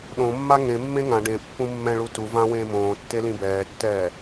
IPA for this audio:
ɗ õ mː a ŋ ẽ mː ẽ ŋ ã ɖ ẽ pː ũ mː ɛ̃ ɭ u t u v ã w ẽː m õː tː e l ĩ b ɛː tː ɛː

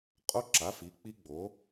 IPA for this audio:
qʼ o˦˥ ǁ a˩˥ f i˩˥ k͡p i˦˥ ɡ͡b o˩˥

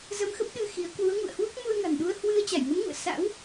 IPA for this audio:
z ə˧ m x ə˦˥ p̚ ɗ ɨ˧ x i˨˦ ə̯ k w u˨˦ ə̯ ŋ ṵ˧˨ ə̯ h w u˦˥ k̚ m u˧ ə̯ ŋ a̤˨˩ n ɗ u˧ ə̯ h w ɨ˧ ə̯ t͡ɕ a˧˩ j ŋ ə˨˦ m ŋ ṵ˧˨ ə̯ s a̰˧˥ w

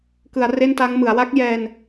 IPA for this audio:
k ɯ˩˦ a̯ r e˥˩ n t a˦˥ ŋ m ɯ˩˦ a̯ w a˦˥ k̚ j ɛː˧ n

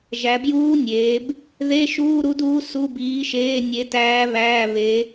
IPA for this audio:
ʒ æ˩˧ b j uː˧˥ nʲ eː˩˧ b | ð e˧˥˧ ʃ uː˧˥˧ ɾ u˧˥ d uː˧˥ s u˧˥˧ b iː˧˥ ʃ eː˧˥˧ nʲ e˧˥ t æː˧˥ β æː˧˥˧ β e˧˥

